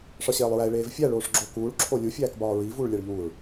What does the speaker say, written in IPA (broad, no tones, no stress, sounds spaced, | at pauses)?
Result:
ʂ ɒ ɕ eː lˠ ɹ æ e̯ ɭ eː v fʲ æ ɭ oː ʂ ɡ͡ǁ o k uː ɭ ǁʰ o lʲ u fʲ æː k b ɒː ɹ i v uː ɭ lʲ æ ɭ ʎ uː ɹ